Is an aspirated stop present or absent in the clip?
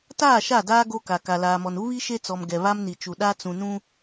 absent